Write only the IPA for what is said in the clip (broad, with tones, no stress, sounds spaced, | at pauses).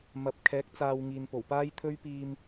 m ɐ˨˥ p̚ kʰ ɛː˨˥ k̚ t͡s aː˧ w ŋ iː˨ n p o˨˩ w p aː˥ j t̪ʰ ɵ˥ ɥ p iː˧ m